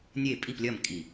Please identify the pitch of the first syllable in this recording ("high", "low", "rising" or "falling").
falling